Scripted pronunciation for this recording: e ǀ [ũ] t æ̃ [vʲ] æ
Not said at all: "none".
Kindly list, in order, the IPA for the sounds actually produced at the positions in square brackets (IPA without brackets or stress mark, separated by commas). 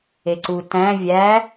u, vʲ